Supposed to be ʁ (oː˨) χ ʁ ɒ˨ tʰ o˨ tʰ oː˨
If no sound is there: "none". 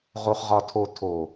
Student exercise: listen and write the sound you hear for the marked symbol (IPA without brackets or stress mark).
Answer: o˨